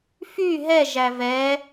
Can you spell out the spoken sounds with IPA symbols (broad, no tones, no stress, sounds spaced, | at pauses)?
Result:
f y ɦ ɛ ʒ æ v ɛ